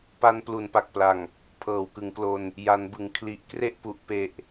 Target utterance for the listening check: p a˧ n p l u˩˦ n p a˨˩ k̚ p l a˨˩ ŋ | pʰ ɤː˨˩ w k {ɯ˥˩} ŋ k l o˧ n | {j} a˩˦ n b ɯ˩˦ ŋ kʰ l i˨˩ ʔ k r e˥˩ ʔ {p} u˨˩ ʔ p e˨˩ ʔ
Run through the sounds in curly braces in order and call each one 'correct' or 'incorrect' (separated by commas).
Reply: incorrect, correct, correct